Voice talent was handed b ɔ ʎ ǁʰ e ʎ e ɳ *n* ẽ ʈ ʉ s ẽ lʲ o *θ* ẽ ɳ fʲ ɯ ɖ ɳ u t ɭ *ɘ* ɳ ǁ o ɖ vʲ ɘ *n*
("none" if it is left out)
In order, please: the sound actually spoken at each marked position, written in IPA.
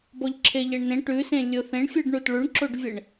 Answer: n, θ, ʉ, ɳ

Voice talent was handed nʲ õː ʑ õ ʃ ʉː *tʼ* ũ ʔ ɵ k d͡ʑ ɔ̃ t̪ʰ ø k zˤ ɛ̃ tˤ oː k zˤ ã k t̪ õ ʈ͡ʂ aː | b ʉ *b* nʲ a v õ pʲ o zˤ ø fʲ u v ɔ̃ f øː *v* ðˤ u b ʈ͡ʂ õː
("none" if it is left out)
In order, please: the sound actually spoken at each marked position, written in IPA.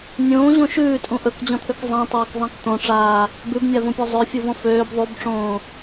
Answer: tʼ, b, b

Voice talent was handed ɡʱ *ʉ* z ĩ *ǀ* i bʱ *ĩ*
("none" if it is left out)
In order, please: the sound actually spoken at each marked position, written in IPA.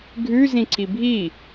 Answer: ʉ, ǀ, i

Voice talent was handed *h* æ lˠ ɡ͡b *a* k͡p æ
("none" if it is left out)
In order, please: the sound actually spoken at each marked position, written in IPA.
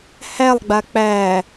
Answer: h, a

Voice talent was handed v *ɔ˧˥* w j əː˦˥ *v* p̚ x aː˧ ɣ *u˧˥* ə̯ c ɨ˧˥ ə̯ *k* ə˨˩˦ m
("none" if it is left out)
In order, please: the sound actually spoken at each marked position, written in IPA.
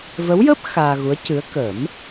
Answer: ə˧˥, none, u˧˥, k

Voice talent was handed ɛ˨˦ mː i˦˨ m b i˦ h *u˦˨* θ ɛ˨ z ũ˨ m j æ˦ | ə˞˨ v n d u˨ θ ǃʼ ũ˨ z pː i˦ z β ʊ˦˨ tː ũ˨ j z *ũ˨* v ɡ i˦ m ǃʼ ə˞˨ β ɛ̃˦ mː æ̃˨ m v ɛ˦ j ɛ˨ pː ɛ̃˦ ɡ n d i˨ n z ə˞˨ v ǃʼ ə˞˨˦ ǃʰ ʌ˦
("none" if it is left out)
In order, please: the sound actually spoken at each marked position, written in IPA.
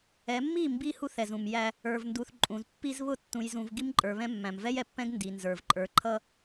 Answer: u˦, ũ˨

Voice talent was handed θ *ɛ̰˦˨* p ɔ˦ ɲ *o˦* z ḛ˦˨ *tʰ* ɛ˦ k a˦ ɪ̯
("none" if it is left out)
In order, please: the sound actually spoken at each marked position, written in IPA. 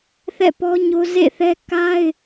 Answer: ɛ̰˦˨, o˦, θ

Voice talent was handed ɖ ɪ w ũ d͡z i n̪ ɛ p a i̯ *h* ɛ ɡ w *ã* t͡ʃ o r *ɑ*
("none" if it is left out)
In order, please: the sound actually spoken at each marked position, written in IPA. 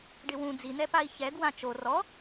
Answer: ç, ã, ɔ

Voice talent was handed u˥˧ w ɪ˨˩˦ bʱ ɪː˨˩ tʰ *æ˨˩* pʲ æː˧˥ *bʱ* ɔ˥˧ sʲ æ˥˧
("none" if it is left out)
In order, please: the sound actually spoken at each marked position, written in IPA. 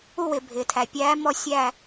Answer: æ˨˩, m

